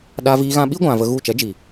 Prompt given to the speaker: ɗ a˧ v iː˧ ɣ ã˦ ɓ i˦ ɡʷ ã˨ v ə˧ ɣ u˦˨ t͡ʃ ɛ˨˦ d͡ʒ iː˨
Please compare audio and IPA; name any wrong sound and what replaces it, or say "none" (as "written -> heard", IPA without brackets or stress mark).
none